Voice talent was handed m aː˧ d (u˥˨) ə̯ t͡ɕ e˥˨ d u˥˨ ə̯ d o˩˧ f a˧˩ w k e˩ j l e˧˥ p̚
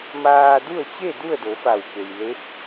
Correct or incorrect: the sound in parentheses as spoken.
correct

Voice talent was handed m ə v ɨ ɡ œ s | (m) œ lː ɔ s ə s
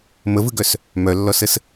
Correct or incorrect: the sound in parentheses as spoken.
correct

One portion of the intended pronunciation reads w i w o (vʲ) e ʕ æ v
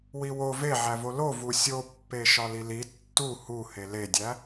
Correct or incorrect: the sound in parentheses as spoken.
incorrect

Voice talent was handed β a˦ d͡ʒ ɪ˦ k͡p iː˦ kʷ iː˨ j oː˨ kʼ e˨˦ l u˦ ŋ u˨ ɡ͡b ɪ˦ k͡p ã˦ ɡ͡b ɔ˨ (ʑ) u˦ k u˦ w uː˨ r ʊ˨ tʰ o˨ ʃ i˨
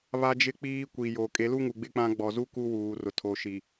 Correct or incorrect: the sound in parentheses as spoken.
incorrect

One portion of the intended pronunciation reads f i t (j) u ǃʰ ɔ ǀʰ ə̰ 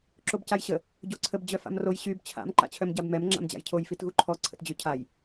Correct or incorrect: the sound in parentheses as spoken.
incorrect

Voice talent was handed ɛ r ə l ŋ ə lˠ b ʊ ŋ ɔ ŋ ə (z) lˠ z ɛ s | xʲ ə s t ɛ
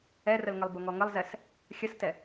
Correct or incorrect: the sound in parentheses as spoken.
incorrect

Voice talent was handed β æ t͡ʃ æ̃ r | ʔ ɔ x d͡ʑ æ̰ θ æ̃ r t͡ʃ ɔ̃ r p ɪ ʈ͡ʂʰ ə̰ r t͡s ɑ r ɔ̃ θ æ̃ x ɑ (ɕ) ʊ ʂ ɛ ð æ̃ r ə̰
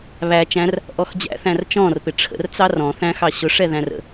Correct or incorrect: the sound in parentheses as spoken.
correct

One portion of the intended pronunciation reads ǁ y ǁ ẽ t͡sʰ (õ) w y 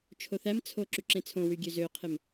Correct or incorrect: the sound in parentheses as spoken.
correct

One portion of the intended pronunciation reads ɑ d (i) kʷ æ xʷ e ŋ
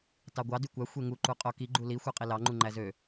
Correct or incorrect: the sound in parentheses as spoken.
incorrect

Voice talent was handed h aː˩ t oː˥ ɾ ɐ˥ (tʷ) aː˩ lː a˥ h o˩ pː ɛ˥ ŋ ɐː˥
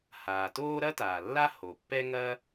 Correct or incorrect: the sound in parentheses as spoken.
incorrect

